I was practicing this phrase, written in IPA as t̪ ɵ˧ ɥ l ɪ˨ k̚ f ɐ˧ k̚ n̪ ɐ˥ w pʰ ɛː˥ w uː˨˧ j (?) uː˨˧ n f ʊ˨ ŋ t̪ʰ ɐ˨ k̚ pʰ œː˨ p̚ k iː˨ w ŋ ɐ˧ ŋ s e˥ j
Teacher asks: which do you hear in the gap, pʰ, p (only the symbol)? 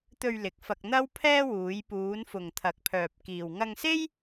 p